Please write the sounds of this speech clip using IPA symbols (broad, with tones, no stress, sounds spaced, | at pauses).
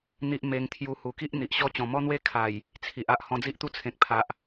n̪ i˦ ʔ m e˧ ŋ t̪ʰ j u˧ h u˨˩ k i˦ ʔ n̪ i˨ ʔ ɕ ɔ˦ t͡ɕ ɔ̃˨˩ m ɔ˦ n̪ w e˦ kʰ a˨˩ j | t͡sʰ i˨ ʔ a˨ ʔ h ɔ̃˧ d͡z i˦ ʔ t̪ u˦ t͡sʰ ẽ˨ k̚ pʰ a˨ ʔ